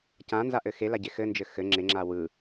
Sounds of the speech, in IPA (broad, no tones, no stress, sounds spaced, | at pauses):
c ã n z a ʔ ɘ x e l a ɟ e x ɘ n d͡ʒ ɘ x ɘ ŋ͡ǁ e ŋ͡ǁ a w ɯ